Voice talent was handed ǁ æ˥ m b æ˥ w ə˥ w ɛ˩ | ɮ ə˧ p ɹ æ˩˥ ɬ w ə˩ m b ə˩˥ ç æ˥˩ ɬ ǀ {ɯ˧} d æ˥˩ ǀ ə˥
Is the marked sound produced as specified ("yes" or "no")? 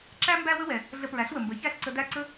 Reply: no